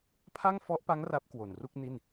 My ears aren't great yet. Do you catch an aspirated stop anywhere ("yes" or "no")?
yes